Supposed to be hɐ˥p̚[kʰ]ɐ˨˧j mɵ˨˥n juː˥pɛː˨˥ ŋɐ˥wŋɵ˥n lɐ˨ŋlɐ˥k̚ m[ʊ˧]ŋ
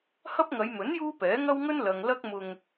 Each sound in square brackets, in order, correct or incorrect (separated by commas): incorrect, correct